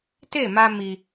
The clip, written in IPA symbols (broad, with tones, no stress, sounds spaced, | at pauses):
t e˦˨ m a˧ m i˧